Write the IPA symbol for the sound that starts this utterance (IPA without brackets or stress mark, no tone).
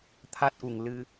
t̪ʰ